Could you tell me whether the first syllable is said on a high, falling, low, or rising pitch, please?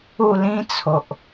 falling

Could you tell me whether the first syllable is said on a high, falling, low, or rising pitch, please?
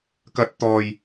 rising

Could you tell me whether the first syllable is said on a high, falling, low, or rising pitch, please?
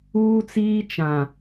high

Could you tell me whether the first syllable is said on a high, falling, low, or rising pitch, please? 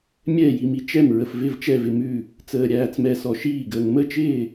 falling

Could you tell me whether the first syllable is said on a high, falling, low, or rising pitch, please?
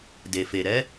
low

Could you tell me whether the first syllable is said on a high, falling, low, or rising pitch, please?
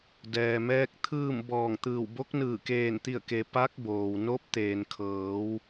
low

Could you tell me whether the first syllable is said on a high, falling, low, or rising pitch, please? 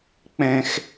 high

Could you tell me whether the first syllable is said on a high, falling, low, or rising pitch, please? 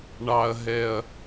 low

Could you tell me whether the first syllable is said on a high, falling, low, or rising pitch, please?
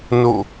falling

